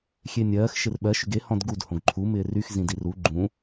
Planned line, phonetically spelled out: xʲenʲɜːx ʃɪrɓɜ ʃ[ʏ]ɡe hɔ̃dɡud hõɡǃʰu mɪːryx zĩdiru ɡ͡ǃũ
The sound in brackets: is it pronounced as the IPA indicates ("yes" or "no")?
yes